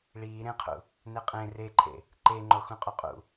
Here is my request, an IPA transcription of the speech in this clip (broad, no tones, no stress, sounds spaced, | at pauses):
ɭ iː ɾ ẽ qʰ ṵ | n e qʼ ẽ r e ǃʰ ḛ | ǃ e ŋ͡ǃ o x ũ qʼ o qʼ ṵ